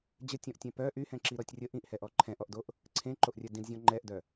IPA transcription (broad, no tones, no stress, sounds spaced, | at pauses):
d͡ʑ ə tʲ ɔ̃ ʔ tʲ ɛ̃ p œ ʔ y h ɛ̃ ǁ i ɾ ɔ tʲ rʲ ə ʔ ĩ ʔ h ɛ ʔ ɔ ǃʰ ɛ̃ ʔ ɔ ʔ d o ʔ | ǀʰ ẽ ǃ o ʔ rʲ œ d ĩ d zʲ ɔ̃ ŋ͡ǃ ɛ ʔ d œ